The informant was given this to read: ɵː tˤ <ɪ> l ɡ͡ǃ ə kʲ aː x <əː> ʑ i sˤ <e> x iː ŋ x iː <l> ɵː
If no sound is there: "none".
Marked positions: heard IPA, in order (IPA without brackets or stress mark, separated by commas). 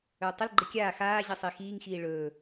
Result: ɪ, aː, i, ɭ